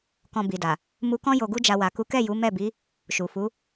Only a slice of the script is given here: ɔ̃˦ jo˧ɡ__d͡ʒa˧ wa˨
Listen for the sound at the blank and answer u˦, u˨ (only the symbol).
u˦